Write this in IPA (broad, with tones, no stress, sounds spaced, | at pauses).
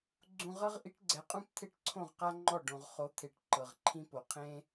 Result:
ɡ͡ǀ ũ˧ ʁ ɤ˦ ʁ ʔ i˨˦ ʈ ɡ͡ǀ ɛ˨ qʼ ũ˦ p t̪ʰ e˦˨ ʈ ǀʰ õ˦˨ ʁ q a˦ ŋ͡ǃ ɔ˦˨ ɖ õ˨ ʁ χ o˨˦ t̪ʰ e˨ ʈ ǃ ɤ˨ ʁ ǃʰ ĩ˦ p o˨ qʰ ẽ˦